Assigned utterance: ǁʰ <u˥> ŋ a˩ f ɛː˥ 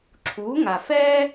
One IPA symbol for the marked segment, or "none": u˩˥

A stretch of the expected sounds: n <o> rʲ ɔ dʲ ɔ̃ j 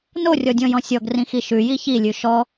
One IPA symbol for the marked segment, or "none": o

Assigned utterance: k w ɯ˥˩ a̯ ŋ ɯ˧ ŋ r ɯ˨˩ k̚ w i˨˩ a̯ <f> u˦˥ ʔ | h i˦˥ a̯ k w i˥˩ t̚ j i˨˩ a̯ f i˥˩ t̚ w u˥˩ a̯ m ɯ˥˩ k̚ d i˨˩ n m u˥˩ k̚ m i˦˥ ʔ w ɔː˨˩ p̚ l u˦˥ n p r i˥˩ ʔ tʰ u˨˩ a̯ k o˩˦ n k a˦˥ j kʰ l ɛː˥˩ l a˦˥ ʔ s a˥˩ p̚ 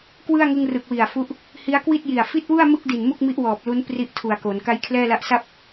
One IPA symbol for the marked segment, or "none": f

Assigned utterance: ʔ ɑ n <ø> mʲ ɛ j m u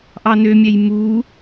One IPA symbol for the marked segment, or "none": ø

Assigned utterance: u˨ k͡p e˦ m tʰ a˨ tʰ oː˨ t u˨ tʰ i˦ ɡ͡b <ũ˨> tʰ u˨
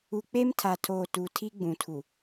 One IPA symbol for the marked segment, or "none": ũ˨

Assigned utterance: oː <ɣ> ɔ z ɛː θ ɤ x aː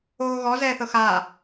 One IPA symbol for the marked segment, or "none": ɣ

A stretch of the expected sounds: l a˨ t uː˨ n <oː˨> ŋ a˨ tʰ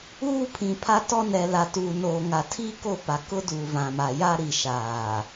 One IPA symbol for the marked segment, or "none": oː˨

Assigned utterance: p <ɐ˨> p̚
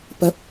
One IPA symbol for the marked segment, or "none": ɐ˨˥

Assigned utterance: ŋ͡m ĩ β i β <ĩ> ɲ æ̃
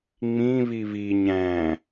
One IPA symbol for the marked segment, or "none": i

